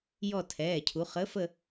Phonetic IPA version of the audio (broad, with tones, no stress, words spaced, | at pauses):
jɔ˦˨tʰɛː˩˧˩cʰu˩˧ χəː˨˥fə˦˨